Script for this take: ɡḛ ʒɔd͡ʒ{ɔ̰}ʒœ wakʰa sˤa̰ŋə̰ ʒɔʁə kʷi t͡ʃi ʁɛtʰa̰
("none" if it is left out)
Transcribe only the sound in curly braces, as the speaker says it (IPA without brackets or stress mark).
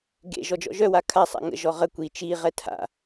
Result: ɔ̰